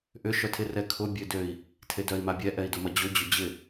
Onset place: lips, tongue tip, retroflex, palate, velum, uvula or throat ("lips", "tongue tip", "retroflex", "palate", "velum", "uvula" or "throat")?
throat